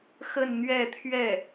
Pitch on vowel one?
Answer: falling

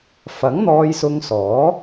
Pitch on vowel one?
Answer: rising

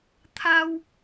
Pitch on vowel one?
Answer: high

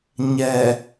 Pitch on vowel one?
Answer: low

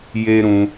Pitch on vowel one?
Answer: high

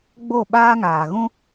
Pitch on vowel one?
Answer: falling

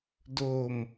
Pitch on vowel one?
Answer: low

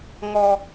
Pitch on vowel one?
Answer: high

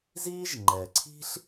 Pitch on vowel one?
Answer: high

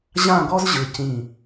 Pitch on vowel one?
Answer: falling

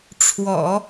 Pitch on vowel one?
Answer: low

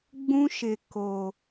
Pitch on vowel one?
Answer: high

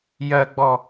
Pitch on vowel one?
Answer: high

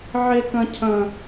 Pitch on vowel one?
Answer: high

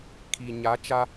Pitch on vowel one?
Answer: low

